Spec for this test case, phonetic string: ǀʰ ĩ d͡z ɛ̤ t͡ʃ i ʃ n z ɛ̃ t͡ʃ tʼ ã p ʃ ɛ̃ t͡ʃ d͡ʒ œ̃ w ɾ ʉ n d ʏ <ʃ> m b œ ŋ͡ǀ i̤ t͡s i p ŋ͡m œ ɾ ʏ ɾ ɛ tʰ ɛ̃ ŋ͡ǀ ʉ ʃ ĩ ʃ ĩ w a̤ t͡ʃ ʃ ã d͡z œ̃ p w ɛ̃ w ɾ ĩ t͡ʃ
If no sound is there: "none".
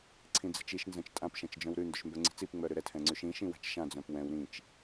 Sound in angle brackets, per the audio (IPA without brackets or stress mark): ʃ